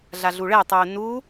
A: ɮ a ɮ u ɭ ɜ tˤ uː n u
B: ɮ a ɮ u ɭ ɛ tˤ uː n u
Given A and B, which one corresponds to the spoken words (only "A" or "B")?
B